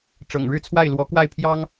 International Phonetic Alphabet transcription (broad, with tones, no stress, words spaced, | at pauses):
ʈ͡ʂɤ̰˨˩ŋɻɻ̩˥˧t͡sʰwa˥˩ɪ̯lwɔ˧˥ kwa˥˩ɪ̯pʰjɑ˥ŋ